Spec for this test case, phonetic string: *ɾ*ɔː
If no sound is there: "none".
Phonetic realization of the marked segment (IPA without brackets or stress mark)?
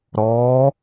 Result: ɾ